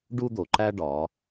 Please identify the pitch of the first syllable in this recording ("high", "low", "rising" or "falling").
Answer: high